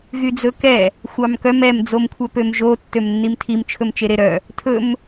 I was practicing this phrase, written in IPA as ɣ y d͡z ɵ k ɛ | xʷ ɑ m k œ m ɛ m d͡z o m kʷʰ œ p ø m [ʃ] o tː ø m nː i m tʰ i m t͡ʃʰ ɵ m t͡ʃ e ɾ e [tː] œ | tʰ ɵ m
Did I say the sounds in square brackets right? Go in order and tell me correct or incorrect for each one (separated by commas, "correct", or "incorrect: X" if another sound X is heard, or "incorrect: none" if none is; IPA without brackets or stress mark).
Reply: incorrect: ʒ, incorrect: ɾ